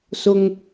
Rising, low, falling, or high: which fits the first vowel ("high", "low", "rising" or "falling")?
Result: low